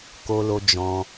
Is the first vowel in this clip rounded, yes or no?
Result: yes